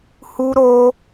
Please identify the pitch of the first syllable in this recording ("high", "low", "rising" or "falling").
high